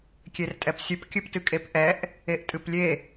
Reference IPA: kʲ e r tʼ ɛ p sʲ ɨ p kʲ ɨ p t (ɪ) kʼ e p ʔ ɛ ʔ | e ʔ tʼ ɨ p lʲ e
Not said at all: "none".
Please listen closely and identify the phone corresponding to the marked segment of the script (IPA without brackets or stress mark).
ɨ